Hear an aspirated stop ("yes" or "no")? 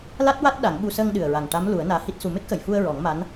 no